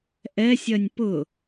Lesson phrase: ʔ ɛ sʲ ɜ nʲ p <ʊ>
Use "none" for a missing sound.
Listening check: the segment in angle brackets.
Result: ʊ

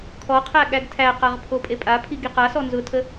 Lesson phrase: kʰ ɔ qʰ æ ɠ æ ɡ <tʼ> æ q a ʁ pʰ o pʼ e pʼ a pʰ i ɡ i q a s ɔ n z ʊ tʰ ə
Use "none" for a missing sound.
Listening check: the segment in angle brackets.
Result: tʰ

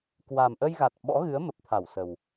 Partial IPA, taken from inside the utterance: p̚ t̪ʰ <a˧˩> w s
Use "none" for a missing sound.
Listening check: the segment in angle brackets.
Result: a˧˩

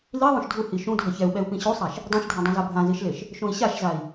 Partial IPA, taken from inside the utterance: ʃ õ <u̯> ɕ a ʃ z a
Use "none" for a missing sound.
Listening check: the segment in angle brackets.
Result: i̯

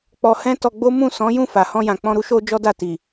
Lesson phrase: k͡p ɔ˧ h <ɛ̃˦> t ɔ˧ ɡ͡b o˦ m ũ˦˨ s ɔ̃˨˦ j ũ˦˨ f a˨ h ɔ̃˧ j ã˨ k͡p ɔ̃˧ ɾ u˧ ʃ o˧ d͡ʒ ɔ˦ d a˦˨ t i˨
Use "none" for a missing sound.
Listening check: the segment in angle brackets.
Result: ɛ̃˦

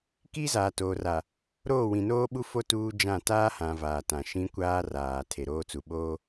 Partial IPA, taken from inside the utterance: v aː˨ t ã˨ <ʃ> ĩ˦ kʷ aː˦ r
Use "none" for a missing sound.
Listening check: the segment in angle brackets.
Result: ʃ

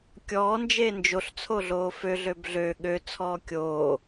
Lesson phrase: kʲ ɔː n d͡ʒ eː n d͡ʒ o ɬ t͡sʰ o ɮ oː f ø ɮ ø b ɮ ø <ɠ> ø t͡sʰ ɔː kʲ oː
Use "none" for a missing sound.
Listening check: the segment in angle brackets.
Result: ɠ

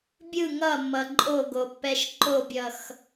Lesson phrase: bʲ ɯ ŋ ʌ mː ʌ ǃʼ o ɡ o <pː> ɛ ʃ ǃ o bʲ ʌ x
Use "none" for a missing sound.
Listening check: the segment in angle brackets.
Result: pː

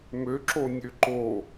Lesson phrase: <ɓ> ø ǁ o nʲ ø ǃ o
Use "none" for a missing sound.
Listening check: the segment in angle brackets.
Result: m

